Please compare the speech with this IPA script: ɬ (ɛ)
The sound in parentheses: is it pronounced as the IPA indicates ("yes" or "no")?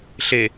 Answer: no